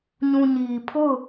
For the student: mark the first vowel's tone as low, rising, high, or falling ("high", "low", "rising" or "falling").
low